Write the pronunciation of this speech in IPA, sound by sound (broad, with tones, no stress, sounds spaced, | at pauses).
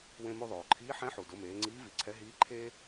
w ẽ˧ m u˧ ðˤ oː˩ ǃʰ iː˧˥ ħ ɛ̃˧˥ ħ u˩ d ʊ˩˧ m eː˩˧ ŋ͡ǀ iː˧˥ v i˩˧ ǀʰ ɛ˧˥ ɦ iː˧˥ ǃʰ eː˥